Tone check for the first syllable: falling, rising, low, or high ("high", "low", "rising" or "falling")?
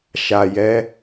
low